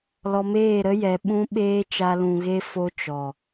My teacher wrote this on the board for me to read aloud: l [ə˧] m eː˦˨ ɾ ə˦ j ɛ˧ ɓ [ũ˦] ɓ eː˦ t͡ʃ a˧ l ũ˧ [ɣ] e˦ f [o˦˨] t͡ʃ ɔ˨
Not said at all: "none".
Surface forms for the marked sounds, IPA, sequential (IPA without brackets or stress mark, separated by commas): ɔ˧, ũ˦, ɣ, o˧